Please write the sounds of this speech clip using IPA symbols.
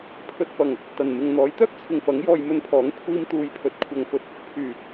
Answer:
pʰ ɵ˨ t̚ f ɐ˨˩ ŋ | t̪ ɐ˨˩ n m ɪ˨ ŋ n̪ ɔː˨˥ j t̪ œː˥ k̚ t͡sʰ ɪ˨ ŋ f ɐ˨˥ ŋ j ɔː˧ j m ɵ˧ n pʰ ɔː˨˥ ŋ kʷʰ iː˧ m t̪ uː˨˧ j pʰ ɵ˨ t̚ kʷʰ ɐ˨ ŋ f ɵ˧ t̚ | pʰ yː˨˩

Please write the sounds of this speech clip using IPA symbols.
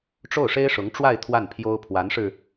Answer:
ʈ͡ʂ o˥˩ ʊ̯ ʂ e˥ ɪ̯ ʂ ʊ˧˥ ŋ ʈ͡ʂ w a˥˧ ɪ̯ t̪ʰ w a˥˩ n pʰ j o˥ ʊ̯ pʰ w a˧˥ n ʂ ɻ̩˧

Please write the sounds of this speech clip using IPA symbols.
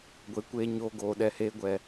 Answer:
ɡʷ e˨˦ kʷ eː˧ ɲ oː˧ ɡ oː˨ ɗ ɛ˨ h eː˧ ɡʷ ɛ˨

